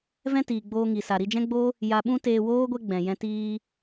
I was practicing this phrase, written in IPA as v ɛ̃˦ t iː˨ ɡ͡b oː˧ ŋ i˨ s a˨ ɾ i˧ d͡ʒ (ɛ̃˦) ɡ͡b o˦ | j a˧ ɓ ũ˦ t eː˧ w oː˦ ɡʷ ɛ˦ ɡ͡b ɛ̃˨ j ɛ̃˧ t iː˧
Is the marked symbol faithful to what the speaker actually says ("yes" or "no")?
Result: yes